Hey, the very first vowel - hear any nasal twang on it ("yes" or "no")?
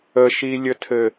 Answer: no